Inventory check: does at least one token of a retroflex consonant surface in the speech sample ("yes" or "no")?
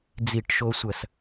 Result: yes